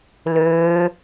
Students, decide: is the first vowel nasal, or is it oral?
oral